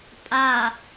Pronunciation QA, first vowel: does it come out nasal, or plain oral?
oral